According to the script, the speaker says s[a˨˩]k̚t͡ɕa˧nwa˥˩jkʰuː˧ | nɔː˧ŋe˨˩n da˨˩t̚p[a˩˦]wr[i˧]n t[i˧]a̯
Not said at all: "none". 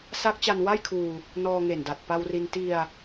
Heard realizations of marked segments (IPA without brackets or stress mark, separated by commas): a˦˥, a˧, i˧, i˧